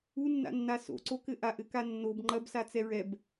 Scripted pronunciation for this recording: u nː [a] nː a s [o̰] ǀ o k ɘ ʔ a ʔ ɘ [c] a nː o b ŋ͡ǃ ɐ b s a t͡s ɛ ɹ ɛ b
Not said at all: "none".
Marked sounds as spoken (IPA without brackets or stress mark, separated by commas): a̰, o̰, k